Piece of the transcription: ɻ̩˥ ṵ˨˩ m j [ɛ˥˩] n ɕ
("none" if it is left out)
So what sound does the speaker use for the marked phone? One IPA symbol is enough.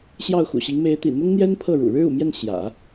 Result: ɛ˥˩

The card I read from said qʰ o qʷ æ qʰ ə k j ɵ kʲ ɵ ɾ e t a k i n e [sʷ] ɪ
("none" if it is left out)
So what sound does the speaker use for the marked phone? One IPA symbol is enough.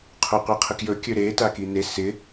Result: s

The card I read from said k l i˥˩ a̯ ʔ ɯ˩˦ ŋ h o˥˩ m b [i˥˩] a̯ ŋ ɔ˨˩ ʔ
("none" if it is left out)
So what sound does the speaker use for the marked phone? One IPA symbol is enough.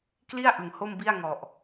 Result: i˥˩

